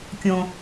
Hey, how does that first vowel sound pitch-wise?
low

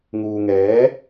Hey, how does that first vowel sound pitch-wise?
low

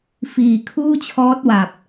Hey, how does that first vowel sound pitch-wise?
low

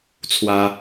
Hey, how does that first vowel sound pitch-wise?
high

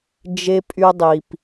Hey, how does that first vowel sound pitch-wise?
low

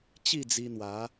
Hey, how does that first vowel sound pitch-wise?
falling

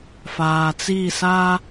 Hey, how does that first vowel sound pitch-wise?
low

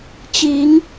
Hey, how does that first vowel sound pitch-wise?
rising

